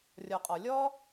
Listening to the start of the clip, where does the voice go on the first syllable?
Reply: low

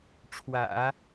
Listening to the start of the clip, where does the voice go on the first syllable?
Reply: low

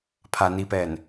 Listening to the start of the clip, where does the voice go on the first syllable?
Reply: low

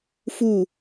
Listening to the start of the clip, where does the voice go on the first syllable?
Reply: falling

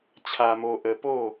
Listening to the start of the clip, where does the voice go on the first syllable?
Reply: low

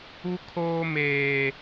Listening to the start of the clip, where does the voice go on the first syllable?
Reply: high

